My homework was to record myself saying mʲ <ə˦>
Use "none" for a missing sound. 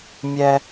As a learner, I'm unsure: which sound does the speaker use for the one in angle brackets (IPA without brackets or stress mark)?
ɛ˦